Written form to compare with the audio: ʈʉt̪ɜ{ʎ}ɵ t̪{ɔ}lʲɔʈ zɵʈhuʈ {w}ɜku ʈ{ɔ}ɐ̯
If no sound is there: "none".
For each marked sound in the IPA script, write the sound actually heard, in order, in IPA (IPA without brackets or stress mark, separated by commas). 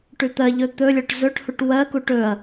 ʎ, ɵ, w, ɵ